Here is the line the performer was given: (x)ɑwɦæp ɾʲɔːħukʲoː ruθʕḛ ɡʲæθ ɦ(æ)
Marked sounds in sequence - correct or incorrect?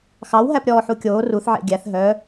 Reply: correct, incorrect

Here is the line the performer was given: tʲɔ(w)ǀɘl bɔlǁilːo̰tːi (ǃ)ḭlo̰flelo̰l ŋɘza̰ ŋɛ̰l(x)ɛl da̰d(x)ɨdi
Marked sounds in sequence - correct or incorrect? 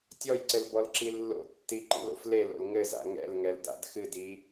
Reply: incorrect, correct, incorrect, correct

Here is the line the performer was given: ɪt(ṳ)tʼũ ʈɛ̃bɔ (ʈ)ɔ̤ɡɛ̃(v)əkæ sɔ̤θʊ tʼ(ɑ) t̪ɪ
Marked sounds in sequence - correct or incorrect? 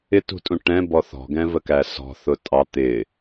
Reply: correct, incorrect, correct, correct

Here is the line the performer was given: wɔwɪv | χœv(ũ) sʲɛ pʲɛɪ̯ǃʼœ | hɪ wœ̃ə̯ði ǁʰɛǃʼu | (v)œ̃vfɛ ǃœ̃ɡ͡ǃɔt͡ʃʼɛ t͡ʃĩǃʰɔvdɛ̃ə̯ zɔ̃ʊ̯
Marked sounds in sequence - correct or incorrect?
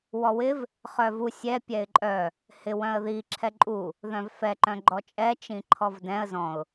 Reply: incorrect, incorrect

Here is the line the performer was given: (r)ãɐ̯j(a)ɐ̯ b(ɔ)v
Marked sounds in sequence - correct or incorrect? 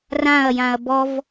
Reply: correct, incorrect, correct

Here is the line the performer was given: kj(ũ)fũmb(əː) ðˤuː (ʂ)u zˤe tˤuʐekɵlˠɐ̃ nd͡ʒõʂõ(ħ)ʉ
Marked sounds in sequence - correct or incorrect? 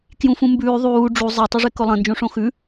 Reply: correct, incorrect, incorrect, incorrect

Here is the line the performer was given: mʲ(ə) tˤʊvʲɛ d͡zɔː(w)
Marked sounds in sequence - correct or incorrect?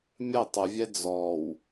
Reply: correct, correct

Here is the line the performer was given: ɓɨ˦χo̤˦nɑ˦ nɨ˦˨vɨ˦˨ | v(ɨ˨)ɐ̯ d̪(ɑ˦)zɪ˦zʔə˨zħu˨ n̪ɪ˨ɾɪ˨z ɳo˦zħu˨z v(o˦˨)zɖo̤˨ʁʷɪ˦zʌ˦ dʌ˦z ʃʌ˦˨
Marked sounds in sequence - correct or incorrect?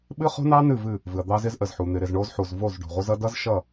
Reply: correct, correct, correct

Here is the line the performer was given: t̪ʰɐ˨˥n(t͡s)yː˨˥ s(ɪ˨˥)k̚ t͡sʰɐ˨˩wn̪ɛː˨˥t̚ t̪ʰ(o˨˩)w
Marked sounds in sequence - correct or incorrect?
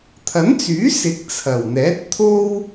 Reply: correct, correct, incorrect

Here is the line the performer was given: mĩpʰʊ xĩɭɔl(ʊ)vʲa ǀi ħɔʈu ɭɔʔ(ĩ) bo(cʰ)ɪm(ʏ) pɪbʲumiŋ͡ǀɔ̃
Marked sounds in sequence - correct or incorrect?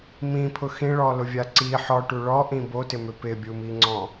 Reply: correct, correct, incorrect, correct

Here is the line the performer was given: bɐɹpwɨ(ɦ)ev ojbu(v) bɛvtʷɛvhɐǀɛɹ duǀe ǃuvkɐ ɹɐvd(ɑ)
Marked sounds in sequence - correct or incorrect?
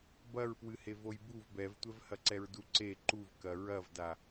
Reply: incorrect, correct, incorrect

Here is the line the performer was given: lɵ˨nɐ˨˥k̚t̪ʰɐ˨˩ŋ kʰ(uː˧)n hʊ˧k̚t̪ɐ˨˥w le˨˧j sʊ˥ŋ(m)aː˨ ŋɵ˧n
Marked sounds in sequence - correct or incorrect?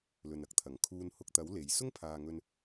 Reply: correct, incorrect

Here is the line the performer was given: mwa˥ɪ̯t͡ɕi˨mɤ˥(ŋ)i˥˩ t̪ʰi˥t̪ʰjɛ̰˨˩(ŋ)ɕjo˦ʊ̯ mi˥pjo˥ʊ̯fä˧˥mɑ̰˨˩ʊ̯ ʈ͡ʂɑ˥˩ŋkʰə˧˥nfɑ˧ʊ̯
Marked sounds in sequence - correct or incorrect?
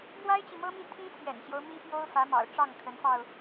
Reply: incorrect, incorrect

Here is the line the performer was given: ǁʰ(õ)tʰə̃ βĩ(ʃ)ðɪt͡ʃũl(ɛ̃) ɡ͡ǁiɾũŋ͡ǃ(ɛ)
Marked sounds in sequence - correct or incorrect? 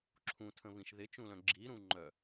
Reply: incorrect, correct, incorrect, incorrect

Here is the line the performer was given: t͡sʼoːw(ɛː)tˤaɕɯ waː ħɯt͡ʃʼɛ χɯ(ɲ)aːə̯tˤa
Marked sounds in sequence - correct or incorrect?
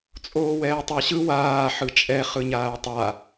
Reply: correct, correct

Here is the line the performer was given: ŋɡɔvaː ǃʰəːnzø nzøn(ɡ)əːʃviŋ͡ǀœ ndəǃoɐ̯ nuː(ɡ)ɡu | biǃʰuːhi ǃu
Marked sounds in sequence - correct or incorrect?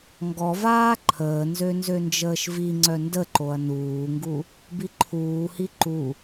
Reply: incorrect, incorrect

